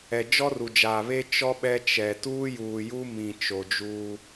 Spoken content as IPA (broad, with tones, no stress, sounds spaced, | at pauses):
ɛ˨ d͡ʒ ɔ˦ r u˨ d͡ʒ aː˨ β e˦ t͡ʃ ɔ˦ ɓ ɛ˦ t͡ʃ ɛ˨ t uː˦ j uː˨ j u˦ m ĩ˨ t͡ʃ o˨ d͡ʒ uː˦